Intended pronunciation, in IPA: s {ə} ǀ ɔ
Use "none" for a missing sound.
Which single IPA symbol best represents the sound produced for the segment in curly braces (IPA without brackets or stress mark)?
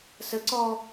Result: ə